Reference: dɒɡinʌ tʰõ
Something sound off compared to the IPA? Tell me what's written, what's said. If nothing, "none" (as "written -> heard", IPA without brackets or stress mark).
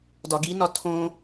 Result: ʌ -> ɒ